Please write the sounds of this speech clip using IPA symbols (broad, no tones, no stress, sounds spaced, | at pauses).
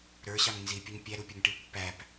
ɾ ə˞ ɕ ɑ ŋ n z i pʲ ʌ ɲ pʲ æ ɾ u pʲ ʌ ŋ ʈ i pː æ p